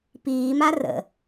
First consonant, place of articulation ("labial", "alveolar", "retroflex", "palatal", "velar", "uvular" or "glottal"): labial